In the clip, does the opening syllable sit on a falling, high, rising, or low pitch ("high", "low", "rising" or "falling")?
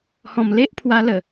low